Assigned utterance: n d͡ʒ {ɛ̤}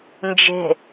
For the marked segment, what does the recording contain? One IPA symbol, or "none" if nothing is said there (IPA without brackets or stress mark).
e̤